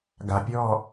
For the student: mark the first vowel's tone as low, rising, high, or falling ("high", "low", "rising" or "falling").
low